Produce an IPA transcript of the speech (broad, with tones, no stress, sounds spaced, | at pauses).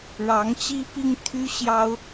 ɻ ɑ˧˥ ŋ t͡ɕ i˥ p i˥ ŋ t̪ʰ y˥ ɕ j ɑ˥ ʊ̯